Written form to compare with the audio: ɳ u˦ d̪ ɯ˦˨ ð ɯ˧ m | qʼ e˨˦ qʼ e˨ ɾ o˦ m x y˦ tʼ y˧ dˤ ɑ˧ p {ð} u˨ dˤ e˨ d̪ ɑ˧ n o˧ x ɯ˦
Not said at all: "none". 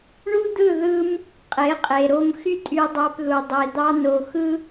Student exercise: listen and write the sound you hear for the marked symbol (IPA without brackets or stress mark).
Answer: ð